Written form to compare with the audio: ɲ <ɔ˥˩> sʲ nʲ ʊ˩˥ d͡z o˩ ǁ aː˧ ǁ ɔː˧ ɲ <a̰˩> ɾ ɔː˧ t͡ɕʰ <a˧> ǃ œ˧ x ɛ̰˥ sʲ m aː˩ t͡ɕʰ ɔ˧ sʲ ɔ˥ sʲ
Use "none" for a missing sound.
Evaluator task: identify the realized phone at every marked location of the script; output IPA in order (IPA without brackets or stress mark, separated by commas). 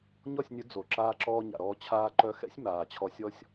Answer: ɔ˥˩, a̰˩, aː˧